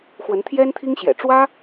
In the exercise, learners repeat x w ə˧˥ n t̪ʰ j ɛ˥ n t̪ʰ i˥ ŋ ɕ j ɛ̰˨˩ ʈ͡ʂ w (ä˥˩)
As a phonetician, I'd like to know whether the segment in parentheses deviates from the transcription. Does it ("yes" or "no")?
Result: yes